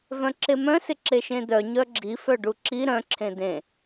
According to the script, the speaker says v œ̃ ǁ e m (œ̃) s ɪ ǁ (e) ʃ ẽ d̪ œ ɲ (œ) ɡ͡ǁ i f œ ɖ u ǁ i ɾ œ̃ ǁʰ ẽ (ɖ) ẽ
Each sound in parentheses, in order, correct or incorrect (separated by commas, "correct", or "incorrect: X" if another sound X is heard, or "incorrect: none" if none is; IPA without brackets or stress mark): correct, correct, correct, incorrect: d̪